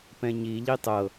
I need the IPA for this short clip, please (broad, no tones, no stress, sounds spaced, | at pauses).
p ɛ̃ ɲ i ʎ i tˤ ɤ